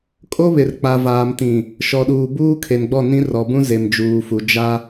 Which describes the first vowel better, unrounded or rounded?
rounded